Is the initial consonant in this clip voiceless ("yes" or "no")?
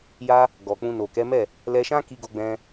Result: no